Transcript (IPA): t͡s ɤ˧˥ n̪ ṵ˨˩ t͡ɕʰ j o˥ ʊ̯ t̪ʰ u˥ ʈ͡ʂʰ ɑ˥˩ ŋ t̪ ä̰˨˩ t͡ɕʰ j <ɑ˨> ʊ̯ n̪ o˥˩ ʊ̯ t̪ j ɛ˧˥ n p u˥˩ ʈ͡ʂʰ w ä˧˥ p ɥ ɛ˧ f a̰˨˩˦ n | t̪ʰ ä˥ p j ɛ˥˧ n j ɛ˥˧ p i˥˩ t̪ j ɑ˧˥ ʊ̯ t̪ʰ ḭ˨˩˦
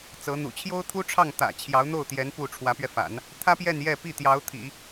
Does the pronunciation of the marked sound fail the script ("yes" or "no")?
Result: yes